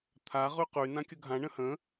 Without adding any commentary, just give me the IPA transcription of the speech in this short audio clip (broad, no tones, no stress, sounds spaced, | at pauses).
t̪ʰ a ʁ y q y n ã kʲ ə ɡʱ ã ɳ ə̃ h ə̃